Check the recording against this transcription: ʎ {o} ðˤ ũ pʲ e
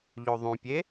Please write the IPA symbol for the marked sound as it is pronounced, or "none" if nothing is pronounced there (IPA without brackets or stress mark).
o